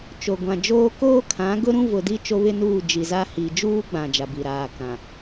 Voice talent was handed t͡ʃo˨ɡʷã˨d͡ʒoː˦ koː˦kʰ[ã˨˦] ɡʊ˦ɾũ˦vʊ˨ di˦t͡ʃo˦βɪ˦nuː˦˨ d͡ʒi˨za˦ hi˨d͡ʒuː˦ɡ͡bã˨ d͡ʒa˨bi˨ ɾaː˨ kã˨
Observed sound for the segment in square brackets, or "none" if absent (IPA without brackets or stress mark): ã˨˦